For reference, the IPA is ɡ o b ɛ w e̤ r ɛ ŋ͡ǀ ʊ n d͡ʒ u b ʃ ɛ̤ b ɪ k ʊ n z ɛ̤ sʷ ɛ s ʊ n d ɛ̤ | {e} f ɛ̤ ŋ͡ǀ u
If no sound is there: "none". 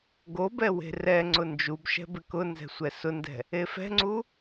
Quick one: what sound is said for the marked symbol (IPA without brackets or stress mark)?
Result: e